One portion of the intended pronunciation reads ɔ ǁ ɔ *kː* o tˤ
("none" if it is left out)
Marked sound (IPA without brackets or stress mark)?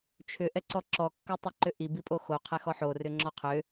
kː